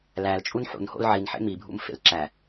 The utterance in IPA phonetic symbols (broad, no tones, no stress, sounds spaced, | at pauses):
l æ l t͡ʃʼ u n ħ ṵ n h o̰ l ʕ i n ħ ḛ m i bʱ ṵ m f ḛ l ǁ æ